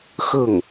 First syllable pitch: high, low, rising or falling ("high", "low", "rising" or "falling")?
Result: falling